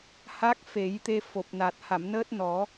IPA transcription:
h a˦˥ k̚ f e˨˩˦ j t̪ e˧ f o˨˩ p̚ n a˨˩ t̚ h a˨˩˨ m n əː˦˥ t̚ n ɔ˨˩˦

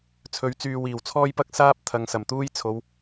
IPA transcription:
t͡sʰ ɵ˨˧ ɥ t͡s yː˨ w iː˨˩ w t͡sʰ ɔː˧ j p ɐ˧ k̚ s aː˥ p̚ t̪ʰ ɐ˨ ŋ s ɐ˨˩ m t̪ uː˥ j t͡sʰ o˨˧ w

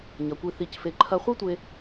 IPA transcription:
ɲ ɐ˩ kʷ i˨ θ i˩ c f e˩ ǃʰ ɐ˨ χʷ i˦ tʷ e˨

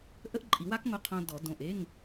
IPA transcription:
ʔ ə˥ ʔ ǃʼ i˨˩˦ w a˥ k ŋ o˧ qʰ õ˧ d ɔ˨˩˦ d õ˩˧˩ ʔ e˧˥˧ ŋ

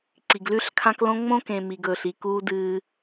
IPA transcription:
ǀ i˨ ɡ l ʉ˦ ɬ kʰ ã˦ k l õ˦ ŋ͡m õ˦ k ẽ˨ m i˨ ɡ ɵː˨ ɬ i˨ k uː˦ d ɨː˦

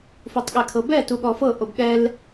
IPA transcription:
f u tˤ ɠ ɛ kʰ ɤ b ɛ t u ɠ ɔ f ɤ ʔ o b ɠ ɛ l

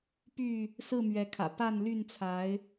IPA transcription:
p y˥˨ | s ɹ̩˥˨ m ɥ ɛ˨˦ kʰ ä̰˨˩ p a˥˨ n l y˥˨ n t͡sʰ a˨˦ ɪ̯

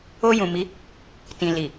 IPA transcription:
o˧ j ũ˨ m i˨˦ | t ĩ˨ l i˨

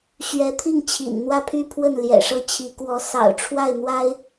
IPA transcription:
ɕ ɥ ɛ˧˥ t̪ʰ i˥˩ ŋ t͡ɕʰ ḭ˨˩ n n̪ w ä˥˧ pʰ y˥˧ pʰ w ə˥˩ n l j ɛ̰˨˩ ʂ ɤ˥˩ t͡ɕʰ i˧˥ k w ɔ˧˥ s ɑ̰˨˩ ʊ̯ ʈ͡ʂʰ w a˥˩ ɪ̯ n̪ w a˥ ɪ̯

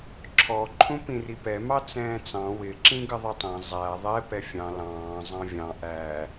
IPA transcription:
ǁʰ ɔ ǃʰ ũ p ĩ r i p ɛ m ɑ t͡s ɛ̃ː t͡s ɑ̃ w ɪ ǁ ĩ ɡ ə ðˤ ɪ tˤ ɛ̃ zˤ æ ðˤ ɛ p ɛ fʲ ɑ̃ l ɑ̃ː zˤ ɑ̃ vʲ ɑ̃ ʔ æ

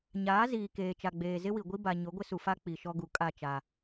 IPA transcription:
ɲ aː˨˦ z iː˨ k eː˨ t͡ʃ a˨ ɡ͡b eː˨ z ɪ˦ w i˨ ɡʷ i˦ b a˨ ɲ ʊ˨˦ ɡʷ ɪ˦ s u˨ f a˦ k͡p i˨ ʃ ɔ˦ ɡ u˨ kʼ a˦˨ t͡ʃ a˨

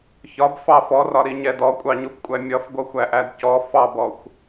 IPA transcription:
ç ɒ b f ɑ f ɔ r ɒ ɾ i ɲ ɛ d ɔ kʷʼ ɑ ɲ u p kʷʼ æ mʲ ʌ f ɡʷ ʌ xʷ æ ʔ æ d c ɔ f ɑ b ɔ xʷ

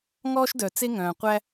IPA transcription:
ŋ ɔː˥ ʃ d œ˩ t͡s e˥ ŋ œ̃ː˩ qʷ æ˦

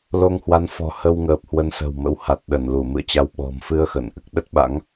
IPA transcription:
l o˧ ŋ h w a˨˦ n f ɔ̤˨˩ h ə˧ w ŋ əː˨˩ p̚ h w ə˨˦ n s ə̤˨˩ w m ə̰˧˥ w h a˨˩ t̚ ɗ ə˧˩ n l u˧˩ m ɨ̰˧˨ ə̯ t͡ɕ a˧ w ɓ ɔ̤˨˩ m f ɨ˧ ə̯ x ə̰˧˨ n ʔ ɨ˦˥ k̚ ɗ ə˦˥ t̚ ɓ a̰˧˥ ŋ

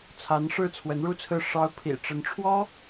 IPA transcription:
t͡sʰ a˧˥ n ʂ ɻ̩˥˩ t͡sʰ w ə˧˥ n ɻ u˥˧ t͡sʰ ɹ̩˥˩ ʂ ɑ˥ ʊ̯ pʰ ḭ˨˩ ʈ͡ʂ ə˧˥ n ʈ͡ʂʰ w ɔ˥

